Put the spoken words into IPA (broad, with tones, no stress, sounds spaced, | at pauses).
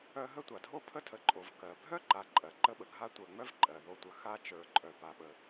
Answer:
œ˦ ɦ ə˦ tʷ a˩ dʱ o˦ pʰ ə˥ tʰ ə˨ ǃʼ o˩ v k ɜ˩ bʱ œ˥ ǃ a˨ ǃʼ ɜ˩ ǃ ə˦ ɓ ə˩ ɡʱ a˦ tʷ ə˞˨ ŋ͡m œ˥ v ǃʼ ɜ˩ ð o˨ tʷ ə˨ x a˥ t͡ʃ ə˞˨ ǃʼ œ˨ p a˨ ɓ ə˨